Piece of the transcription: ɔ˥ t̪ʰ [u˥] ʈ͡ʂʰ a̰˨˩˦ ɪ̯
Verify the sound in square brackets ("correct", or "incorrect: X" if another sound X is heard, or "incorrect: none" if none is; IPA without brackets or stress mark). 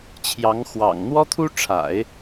correct